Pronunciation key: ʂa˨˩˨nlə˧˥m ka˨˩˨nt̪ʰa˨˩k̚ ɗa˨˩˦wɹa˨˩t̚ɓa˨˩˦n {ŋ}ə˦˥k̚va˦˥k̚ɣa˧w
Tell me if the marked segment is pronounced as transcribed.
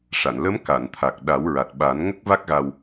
yes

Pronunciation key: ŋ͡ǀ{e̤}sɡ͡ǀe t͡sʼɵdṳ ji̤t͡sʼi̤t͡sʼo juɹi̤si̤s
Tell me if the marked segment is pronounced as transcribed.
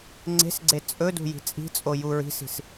yes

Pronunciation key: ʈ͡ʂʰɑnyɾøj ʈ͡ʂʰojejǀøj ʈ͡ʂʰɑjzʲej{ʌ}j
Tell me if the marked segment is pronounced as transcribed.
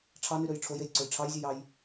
no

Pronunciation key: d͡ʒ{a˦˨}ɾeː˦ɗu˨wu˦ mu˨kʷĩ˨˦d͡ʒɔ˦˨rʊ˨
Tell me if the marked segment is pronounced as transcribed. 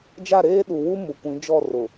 yes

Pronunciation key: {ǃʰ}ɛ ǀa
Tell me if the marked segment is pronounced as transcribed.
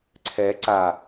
no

